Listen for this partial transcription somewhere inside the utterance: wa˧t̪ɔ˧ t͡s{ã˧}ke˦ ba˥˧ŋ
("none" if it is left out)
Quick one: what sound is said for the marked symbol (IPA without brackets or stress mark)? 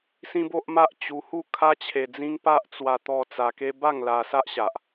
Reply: a˧